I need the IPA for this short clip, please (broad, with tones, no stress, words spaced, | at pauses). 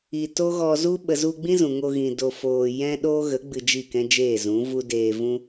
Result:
i˨to˦ ɣɔ˧zu˦ ɓə˨zu˧ɡ͡bĩ˦ zũ˨ŋo˧ɣĩ˨ do˨foː˨ jɛ̃˦ɗoː˦ ɣə˨˦ ɡ͡bɨ˧d͡ʒi˦˨kɛ̃˦d͡ʒeː˦˨ zũ˨˦vu˦ deː˧vũ˦